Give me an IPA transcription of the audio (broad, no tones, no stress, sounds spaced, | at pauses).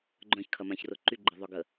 ɡ͡ǃ œ̃ ç kʰ ɐ m ã ç r ʊ ǃ y ɡ͡ǃ ɪ ðˤ œ ɡ ə